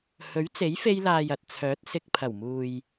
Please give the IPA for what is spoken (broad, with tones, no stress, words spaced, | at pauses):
hɵ˨˥ɥt͡se˨˥jfe˧jlaː˨j ɐ˨t̚ t͡sʰœː˨˥t̚ sɪ˨k̚ pʰɐ˨˩wmuː˨j